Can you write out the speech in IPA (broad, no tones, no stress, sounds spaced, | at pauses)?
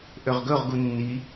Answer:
ʔ ø ʁ ɡ ɵ ʁ ɡ u nː i